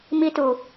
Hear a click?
no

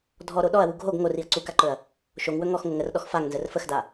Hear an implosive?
yes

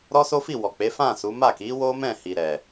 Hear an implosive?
no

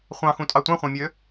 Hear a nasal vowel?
yes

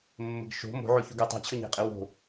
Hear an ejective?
yes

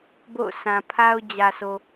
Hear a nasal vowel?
yes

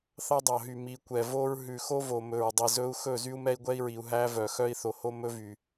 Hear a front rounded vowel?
yes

